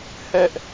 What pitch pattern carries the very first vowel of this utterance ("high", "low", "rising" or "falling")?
high